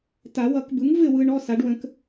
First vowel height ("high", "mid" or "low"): low